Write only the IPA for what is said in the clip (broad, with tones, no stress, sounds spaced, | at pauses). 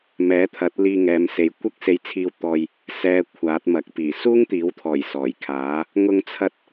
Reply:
m ɛː˨˥ t̪ʰ ɐ˨˥ t̚ l iː˧ ŋ ɛː˨˧ m s e˨˧ j kʷ ɐ˥ k̚ s e˧ j t͡sʰ iː˧ w t̪ ɔː˧ j | s ɛː˨ kʷʰ aː˨˥ t̚ m ɐ˨ k̚ p iː˨˩ s uː˥ ŋ t̪ iː˨˥ w t̪ʰ ɔː˨˩ j s ɔː˨˩ j kʰ aː˨˥ | ŋ ʊ˧ ŋ t͡sʰ ɐ˧ t̚